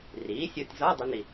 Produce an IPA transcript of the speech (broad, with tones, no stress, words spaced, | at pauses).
riː˩˥sʲo˧tʲzɒ˧˥˧ dˤi˥ni˧